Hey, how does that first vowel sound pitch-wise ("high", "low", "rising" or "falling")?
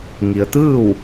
low